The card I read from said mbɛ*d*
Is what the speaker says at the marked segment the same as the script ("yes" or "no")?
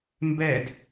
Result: yes